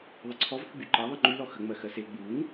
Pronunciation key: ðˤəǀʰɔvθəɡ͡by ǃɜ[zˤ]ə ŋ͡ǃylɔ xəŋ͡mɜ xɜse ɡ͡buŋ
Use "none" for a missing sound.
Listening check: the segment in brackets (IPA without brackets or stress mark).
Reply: ðˤ